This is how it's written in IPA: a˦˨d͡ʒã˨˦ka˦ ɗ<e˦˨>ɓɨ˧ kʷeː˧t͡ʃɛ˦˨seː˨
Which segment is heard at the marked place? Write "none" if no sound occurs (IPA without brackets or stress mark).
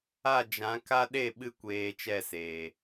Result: e˦˨